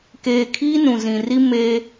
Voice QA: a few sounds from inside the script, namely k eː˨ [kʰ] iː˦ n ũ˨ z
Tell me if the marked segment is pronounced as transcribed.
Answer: yes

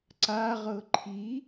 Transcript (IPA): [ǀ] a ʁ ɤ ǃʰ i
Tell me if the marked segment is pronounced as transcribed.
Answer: yes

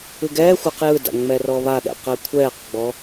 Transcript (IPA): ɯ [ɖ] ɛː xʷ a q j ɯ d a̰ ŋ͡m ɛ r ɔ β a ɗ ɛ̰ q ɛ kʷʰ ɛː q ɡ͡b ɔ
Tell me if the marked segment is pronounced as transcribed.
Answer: no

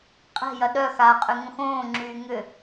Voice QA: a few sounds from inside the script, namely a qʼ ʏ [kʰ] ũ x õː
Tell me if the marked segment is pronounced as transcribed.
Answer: no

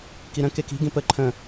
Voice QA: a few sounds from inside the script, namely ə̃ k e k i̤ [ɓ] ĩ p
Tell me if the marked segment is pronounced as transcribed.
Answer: no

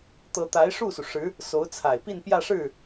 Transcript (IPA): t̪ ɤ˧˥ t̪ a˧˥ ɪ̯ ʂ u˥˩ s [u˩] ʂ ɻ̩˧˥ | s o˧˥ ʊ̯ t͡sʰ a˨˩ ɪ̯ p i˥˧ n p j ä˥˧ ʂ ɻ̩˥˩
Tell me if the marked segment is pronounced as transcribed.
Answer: yes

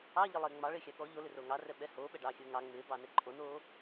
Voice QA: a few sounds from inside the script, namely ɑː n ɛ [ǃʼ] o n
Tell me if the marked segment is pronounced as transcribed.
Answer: yes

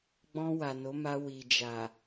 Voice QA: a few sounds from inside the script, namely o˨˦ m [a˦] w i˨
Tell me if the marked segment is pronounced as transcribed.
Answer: no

